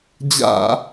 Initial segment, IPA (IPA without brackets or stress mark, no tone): d͡ʑ